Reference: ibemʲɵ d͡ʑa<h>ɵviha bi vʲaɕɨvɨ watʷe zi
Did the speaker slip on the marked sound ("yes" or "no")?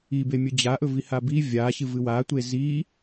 yes